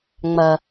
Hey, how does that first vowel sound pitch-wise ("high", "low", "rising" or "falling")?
low